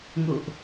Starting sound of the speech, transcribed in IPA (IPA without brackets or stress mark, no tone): ŋ